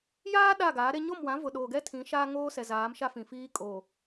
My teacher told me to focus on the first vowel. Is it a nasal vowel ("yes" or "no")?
no